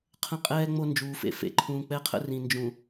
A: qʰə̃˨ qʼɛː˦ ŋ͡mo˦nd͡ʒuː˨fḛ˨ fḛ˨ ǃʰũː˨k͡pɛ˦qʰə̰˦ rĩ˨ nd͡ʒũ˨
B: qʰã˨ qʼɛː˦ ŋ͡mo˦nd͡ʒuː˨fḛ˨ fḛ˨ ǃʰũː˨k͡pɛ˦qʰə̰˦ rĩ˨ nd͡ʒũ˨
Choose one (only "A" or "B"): A